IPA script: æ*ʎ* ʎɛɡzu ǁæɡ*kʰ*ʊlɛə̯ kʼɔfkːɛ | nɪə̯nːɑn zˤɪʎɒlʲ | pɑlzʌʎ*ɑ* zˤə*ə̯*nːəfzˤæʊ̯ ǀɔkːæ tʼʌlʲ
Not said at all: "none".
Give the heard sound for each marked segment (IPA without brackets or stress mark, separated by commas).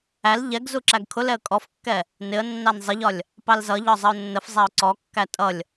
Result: l, kʰ, ɒ, ʊ̯